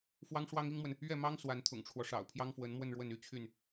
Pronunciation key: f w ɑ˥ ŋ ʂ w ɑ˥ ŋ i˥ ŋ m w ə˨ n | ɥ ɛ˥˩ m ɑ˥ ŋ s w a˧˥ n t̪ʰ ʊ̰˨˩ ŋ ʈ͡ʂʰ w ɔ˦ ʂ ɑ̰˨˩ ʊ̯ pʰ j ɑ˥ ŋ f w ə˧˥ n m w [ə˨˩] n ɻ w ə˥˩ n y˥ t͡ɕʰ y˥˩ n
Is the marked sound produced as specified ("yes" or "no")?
no